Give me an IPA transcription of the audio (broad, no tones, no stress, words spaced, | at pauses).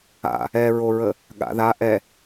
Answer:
a̰ | ɛɹoɹə | ɠa̰ða ʔɛ